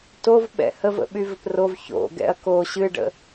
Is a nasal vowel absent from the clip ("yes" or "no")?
yes